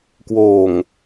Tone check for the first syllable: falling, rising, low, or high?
low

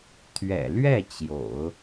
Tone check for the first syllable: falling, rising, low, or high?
low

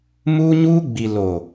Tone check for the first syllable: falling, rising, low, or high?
high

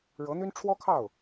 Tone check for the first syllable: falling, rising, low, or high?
rising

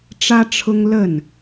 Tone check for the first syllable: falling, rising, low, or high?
high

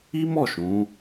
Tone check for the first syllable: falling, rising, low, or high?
high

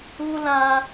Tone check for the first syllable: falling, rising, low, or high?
high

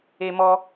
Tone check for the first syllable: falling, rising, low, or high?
high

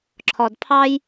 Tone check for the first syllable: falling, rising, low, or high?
low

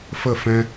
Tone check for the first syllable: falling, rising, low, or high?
falling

